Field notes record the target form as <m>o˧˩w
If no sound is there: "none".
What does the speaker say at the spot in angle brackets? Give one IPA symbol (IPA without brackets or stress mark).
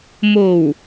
m